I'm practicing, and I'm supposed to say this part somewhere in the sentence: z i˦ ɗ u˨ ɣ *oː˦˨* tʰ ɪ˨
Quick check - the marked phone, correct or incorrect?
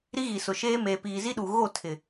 incorrect